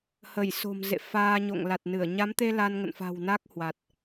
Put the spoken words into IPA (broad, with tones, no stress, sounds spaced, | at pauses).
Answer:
h ə˧˩ j s o̤˨˩ m z ḛ˧˨ f aː˧ ɲ o̰˧˨ ŋ l a˨˩ t̚ n ɨ˧˩ ə̯ ɲ a˨˦ m t̪ e˧ l a˧ n ŋ ə̰˧˨ n f a̤˨˩ w n a˦˥ k̚ h w a˨˩ t̚